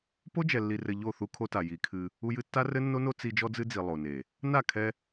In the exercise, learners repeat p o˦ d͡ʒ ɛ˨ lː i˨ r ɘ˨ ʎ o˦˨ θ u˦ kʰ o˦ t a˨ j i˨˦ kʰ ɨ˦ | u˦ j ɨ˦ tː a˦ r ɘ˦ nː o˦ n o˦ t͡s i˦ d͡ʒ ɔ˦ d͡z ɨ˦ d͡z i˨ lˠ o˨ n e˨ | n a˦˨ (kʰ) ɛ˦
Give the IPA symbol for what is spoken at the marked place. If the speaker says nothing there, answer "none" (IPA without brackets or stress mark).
kʰ